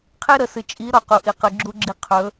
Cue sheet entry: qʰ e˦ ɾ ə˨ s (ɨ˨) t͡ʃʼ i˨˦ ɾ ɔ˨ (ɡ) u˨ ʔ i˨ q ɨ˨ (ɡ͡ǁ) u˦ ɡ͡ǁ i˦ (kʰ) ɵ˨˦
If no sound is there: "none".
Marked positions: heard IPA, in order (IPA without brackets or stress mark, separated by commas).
ɨ˨, q, ɡ͡ǁ, qʰ